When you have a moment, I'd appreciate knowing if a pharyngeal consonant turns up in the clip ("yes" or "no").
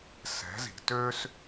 no